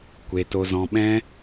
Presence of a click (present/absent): absent